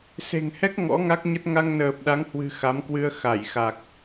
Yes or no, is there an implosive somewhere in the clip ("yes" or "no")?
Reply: yes